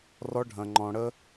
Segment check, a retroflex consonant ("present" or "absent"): present